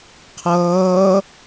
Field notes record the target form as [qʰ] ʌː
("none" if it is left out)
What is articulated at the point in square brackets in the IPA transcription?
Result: qʰ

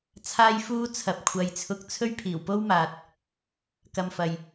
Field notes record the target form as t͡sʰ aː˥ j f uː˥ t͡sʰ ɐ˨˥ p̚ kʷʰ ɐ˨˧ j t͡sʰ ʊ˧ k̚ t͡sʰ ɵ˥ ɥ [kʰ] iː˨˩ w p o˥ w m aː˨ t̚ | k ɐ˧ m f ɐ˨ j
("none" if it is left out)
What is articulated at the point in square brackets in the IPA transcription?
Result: pʰ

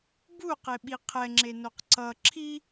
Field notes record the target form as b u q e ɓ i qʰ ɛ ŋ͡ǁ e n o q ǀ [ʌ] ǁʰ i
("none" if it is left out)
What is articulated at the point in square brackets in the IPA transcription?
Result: ʌ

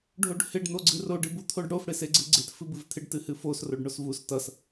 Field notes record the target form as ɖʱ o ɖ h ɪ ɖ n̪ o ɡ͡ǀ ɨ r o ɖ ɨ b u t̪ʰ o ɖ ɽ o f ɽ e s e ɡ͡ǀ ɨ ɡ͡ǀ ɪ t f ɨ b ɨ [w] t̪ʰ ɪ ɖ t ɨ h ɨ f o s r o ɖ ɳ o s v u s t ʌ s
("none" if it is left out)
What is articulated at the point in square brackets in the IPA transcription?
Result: v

